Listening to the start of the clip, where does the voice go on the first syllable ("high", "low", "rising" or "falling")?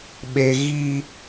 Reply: high